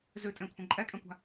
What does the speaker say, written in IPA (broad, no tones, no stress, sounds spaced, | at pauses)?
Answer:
z ʉ tʼ ẽ kʷʰ ə̃ ǃʼ ɛ kʼ ɛ̃ kʷ a̤